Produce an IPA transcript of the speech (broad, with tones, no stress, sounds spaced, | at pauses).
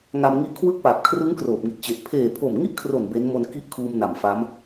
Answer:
ŋ a˧ m ŋ i˦˥ ʔ kʰ w ɯ˥˩ k̚ p a˨˩ p̚ kʰ r ɯ˦˥ ŋ k r oː˨˩ p̚ ŋ i˨˩ t̚ t͡ɕ e˨˩ ʔ pʰ eː˨˩ pʰ o˨˩ m ŋ i˥˩ ʔ kʰ r o˨˩ n b e˦˥ n m o˧ n k i˦˥ ʔ kʰ uː˧ m n a˨˩ m f a˦˥ m